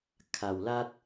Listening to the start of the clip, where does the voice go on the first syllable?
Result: low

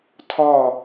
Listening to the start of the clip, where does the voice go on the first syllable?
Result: falling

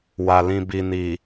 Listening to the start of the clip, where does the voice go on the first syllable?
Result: low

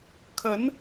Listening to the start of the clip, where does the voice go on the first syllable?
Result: rising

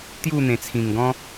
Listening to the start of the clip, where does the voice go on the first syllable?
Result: falling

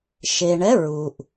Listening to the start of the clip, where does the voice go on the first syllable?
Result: low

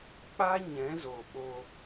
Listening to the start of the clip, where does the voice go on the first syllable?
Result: high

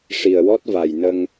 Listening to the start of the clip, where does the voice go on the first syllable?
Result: low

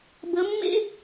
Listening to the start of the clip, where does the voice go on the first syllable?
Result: rising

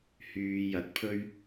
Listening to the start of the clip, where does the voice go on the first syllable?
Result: low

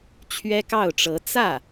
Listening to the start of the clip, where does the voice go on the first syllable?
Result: high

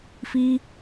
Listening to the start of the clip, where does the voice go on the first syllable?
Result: high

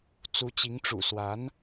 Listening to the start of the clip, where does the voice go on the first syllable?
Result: rising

